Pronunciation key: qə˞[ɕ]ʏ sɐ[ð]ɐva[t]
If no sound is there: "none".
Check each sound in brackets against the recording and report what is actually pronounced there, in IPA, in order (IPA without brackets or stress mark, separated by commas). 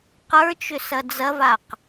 t͡ʃ, d͡z, q